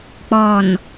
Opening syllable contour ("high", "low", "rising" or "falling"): low